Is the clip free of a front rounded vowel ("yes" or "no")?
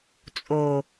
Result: yes